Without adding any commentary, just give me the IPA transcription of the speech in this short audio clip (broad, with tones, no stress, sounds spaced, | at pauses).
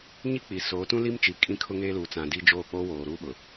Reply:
ɲ i˦ k͡p i˨ s oː˨˦ t ũ˦ l i˦ m t͡ʃ i˨ kʼ ĩ˦ kʰ ʊ˦ ŋ eː˦ l uː˨ t͡s ã˨ d i˦ d͡ʒ oː˦˨ k͡p oː˦ w oː˨ ɾ uː˦ ɓ ʊ˨